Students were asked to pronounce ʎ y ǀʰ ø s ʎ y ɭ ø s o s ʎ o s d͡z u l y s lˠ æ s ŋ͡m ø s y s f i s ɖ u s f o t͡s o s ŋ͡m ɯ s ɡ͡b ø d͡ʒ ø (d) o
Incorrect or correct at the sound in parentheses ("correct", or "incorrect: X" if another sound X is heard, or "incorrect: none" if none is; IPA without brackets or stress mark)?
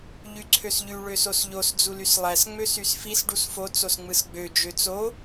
incorrect: t͡s